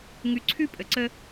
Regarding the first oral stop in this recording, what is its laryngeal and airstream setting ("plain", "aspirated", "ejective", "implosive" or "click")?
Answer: click